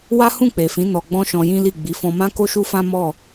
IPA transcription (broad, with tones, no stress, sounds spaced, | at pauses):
w a˦ h ũ˦˨ k͡p e˨ f ĩ˨˦ n ɔ˧ ɡ͡b ɔ̃˦ ʃ ɔ̃˧ j ĩ˦ l i˦˨ ɡ͡b i˨˦ f ɔ̃˧ m ã˦ k o˦ ʃ u˦ f ã˦ m ɔ˦˨